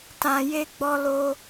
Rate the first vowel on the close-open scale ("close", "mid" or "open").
open